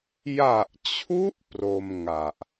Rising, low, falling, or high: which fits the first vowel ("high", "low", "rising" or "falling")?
low